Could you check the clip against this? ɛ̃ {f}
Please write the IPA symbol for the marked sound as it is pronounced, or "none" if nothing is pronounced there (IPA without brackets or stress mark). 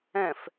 f